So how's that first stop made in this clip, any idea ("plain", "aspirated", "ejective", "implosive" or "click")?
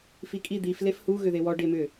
ejective